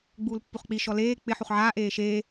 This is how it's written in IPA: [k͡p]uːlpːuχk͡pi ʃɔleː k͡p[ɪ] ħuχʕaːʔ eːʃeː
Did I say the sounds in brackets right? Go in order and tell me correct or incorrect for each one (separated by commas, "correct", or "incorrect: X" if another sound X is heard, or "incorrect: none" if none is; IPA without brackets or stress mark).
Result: incorrect: ɡ͡b, correct